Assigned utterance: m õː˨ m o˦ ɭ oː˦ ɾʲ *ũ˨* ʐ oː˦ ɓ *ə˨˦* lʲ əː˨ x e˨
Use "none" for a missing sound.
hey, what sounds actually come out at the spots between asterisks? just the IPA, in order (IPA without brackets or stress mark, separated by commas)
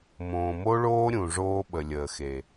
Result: ũ˨, ə˨